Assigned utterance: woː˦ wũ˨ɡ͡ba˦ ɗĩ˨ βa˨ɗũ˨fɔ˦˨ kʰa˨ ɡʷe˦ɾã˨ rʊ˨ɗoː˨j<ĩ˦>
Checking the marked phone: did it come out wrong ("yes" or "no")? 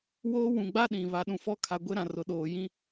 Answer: no